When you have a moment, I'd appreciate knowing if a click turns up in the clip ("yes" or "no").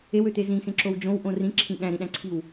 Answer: yes